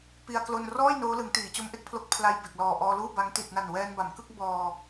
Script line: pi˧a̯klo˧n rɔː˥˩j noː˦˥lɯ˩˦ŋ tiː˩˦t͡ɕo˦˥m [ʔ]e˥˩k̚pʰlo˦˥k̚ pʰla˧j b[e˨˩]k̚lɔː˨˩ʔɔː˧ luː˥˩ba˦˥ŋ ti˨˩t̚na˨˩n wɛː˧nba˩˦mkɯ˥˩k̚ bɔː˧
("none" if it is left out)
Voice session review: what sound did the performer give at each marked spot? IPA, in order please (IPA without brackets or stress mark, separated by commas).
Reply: ʔ, e˨˩